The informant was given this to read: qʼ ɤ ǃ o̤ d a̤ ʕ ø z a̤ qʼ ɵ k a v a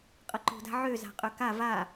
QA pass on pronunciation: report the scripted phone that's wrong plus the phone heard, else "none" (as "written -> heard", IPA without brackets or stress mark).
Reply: none